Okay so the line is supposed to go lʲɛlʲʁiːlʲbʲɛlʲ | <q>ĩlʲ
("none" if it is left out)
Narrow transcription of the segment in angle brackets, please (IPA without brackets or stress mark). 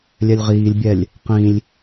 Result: q